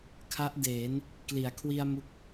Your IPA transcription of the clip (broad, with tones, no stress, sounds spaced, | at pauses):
kʰ a˦˥ ʔ d eː˩˦ n | k l i˩˦ a̯ kʰ w i˧ a̯ m u˦˥ k̚